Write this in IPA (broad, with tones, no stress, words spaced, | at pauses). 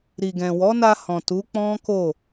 ɾi˨ɡɛ̃˨ wɔ˨˦na˧hɔ̃˨ tu˨˦k͡pɔ̃˦ko˦˨